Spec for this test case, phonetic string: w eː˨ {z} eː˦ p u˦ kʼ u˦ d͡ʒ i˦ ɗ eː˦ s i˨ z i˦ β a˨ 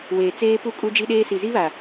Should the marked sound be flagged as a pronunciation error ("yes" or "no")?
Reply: yes